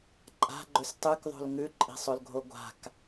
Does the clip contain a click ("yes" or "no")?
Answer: yes